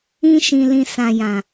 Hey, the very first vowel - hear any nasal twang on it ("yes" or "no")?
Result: yes